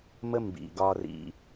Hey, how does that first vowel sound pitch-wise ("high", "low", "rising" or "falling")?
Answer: high